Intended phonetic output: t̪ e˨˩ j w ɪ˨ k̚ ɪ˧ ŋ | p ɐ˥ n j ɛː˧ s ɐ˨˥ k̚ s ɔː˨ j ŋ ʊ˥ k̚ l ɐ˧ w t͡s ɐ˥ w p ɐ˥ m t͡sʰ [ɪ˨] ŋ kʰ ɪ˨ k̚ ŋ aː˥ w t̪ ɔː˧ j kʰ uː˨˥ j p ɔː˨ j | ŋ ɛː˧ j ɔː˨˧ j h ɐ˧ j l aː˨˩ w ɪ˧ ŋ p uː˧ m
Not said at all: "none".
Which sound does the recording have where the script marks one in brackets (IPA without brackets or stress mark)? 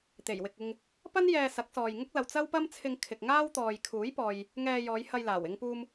ɪ˧